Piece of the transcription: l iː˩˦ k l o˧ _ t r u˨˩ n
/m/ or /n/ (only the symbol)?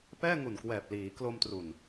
m